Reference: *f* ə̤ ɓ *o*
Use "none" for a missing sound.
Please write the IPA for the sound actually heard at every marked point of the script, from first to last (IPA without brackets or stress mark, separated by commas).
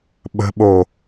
ɓ, o